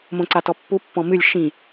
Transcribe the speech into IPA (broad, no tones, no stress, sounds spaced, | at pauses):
m õ ǀ a t ɔ pː u pː ɔ̃ m ɨ lʲ ʃ ĩ